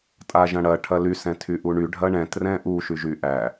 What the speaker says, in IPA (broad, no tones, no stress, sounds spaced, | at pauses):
tʼ a ʒ ɐ̃ ɽ ɐ ʈʰ ɐ l y s ɛ̃ tʰ y ʔ u ɳ y ɖʱ ɐ ɳ ɛ̃ t r ɛ̃ ʔ u ʃ y ʒ y ʔ æ